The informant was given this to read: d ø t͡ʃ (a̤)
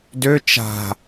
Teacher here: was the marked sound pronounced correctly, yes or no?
yes